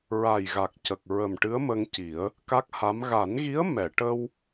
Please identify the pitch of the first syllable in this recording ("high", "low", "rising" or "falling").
low